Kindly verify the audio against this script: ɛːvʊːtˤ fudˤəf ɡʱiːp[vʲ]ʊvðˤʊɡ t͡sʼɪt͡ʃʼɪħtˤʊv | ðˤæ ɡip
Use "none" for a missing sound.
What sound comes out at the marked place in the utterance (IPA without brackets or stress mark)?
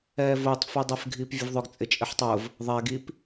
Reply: vʲ